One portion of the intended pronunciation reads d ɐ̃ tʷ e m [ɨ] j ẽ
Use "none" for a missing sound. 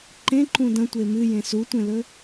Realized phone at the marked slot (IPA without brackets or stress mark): ɨ